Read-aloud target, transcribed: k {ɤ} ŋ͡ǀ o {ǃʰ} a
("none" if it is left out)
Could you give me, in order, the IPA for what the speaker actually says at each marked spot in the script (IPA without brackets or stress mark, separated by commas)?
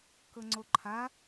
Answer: ɤ, ǃʰ